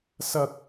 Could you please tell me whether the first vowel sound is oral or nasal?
oral